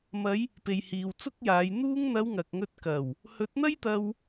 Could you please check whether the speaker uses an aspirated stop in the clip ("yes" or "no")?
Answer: no